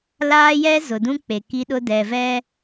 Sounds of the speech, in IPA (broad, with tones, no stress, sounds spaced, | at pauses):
l aː˦ j ɛ˦ z ʊ˨ d ũ˦ k͡p e˨ k i˦ ɗ ʊ˦ d ɛ˨ v ɛ˦